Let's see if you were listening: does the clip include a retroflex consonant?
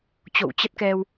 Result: no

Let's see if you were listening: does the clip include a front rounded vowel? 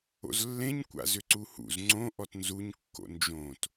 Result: yes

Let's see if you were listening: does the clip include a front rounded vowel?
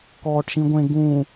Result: no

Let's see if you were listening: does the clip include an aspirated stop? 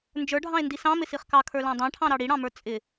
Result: yes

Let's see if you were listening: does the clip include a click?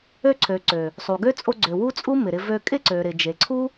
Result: yes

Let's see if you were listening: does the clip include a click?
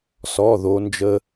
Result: no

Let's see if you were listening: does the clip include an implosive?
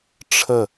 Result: no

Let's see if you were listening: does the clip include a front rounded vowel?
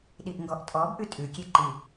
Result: no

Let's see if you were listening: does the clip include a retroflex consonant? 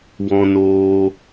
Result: no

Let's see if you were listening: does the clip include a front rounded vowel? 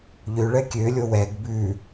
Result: yes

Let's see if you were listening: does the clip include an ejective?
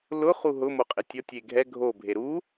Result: yes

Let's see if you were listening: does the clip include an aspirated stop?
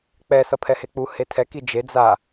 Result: yes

